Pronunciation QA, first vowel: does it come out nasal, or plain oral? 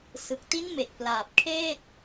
oral